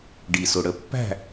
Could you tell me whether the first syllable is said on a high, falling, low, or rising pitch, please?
low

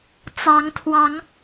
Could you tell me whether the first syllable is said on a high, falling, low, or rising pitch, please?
rising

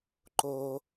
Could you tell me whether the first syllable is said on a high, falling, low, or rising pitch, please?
low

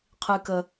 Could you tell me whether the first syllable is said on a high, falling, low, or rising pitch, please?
high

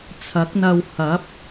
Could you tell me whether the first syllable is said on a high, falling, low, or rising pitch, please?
rising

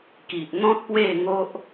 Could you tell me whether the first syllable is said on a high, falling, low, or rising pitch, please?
low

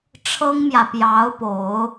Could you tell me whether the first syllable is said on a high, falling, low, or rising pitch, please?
high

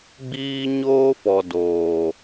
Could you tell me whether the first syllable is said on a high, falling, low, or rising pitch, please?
high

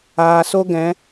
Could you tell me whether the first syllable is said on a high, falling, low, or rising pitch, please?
low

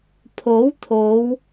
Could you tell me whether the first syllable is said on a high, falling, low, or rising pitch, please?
rising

